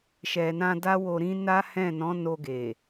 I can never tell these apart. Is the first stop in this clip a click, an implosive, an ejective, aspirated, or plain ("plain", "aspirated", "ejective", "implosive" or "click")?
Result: plain